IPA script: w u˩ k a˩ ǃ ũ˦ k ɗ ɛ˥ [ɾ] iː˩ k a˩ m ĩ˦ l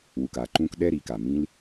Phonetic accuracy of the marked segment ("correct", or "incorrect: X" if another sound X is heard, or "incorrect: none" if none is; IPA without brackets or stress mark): correct